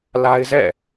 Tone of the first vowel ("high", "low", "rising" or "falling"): high